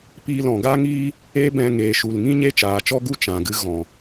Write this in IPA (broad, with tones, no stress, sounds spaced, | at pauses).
p iː˧ l ɔ̃˨ ɡ a˦ ŋ iː˦ | eː˦ b ɛ̃˧ ŋ eː˨ ʃ u˨ l ŋ ĩ˦ ɲ e˦ t͡ʃ aː˨ t͡ʃ ɔ˦ ɡ u˦ t͡ʃ ã˨ ɡ ɨ˦ ɣ ɔ̃˨